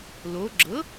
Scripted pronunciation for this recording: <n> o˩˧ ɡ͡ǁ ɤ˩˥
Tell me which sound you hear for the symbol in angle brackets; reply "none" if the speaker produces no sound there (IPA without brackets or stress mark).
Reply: l